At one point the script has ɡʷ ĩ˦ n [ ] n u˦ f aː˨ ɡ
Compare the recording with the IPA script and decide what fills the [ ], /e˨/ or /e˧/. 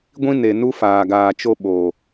e˨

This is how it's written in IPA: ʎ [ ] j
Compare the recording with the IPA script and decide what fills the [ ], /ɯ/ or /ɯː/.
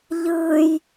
ɯː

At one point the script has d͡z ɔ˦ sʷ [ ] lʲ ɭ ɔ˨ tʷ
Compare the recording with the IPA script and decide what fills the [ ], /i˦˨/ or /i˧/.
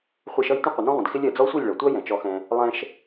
i˦˨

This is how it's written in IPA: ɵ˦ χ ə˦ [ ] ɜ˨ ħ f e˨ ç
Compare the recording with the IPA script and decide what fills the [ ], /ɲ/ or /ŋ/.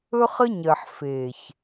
ɲ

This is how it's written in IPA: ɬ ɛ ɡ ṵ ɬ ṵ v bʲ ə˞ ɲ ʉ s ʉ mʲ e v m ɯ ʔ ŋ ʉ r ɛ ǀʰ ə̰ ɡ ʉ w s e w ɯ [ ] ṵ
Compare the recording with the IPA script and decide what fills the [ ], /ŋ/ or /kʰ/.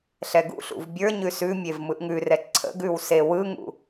ŋ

